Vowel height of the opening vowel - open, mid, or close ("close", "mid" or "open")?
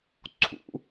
close